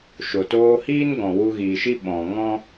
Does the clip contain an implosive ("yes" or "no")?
yes